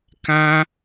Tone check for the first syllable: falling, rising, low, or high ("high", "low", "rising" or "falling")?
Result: high